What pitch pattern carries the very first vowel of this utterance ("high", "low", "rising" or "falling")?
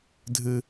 low